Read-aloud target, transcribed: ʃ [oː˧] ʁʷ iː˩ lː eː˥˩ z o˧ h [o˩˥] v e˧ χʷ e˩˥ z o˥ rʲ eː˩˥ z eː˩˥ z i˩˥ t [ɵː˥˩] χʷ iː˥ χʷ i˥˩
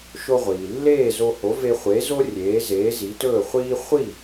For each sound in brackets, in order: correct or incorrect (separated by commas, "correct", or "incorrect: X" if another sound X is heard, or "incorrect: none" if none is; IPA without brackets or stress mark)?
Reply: incorrect: o˧, correct, correct